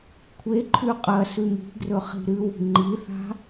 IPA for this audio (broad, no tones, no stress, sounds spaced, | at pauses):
kʷʰ e ǃʰ ʉ qʼ ɐ s ʉ m i̤ ɡ r ɵ χ i̤ ɾ ɨ w i̤ ŋ͡ǃ i θ a̤